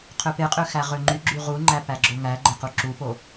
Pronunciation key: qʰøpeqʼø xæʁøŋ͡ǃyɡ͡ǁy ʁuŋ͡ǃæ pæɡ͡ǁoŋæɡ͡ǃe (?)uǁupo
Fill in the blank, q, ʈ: q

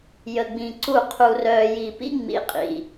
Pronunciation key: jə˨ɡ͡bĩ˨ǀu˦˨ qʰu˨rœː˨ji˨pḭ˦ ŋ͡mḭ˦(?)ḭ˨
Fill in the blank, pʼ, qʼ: qʼ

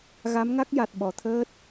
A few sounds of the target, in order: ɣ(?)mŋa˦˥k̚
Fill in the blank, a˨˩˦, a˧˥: a˧˥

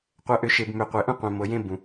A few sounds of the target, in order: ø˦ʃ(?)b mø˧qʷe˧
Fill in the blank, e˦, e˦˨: e˦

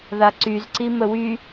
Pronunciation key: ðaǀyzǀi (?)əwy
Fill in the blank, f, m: m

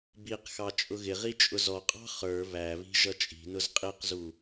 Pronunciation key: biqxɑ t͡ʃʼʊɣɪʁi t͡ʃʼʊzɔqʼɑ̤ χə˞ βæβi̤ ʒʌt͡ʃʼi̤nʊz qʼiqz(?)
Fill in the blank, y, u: u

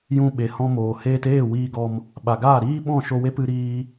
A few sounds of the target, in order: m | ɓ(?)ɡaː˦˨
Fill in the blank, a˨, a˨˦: a˨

